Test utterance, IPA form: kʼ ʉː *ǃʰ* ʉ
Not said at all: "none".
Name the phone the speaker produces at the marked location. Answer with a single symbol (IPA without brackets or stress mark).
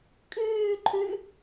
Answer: ǃʰ